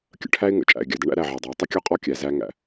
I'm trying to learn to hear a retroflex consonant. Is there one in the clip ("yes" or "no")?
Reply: yes